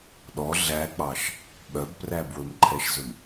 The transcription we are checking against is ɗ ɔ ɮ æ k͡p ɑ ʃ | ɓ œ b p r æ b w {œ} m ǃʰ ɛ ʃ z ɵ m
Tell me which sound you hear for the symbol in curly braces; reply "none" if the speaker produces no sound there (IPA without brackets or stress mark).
ɵ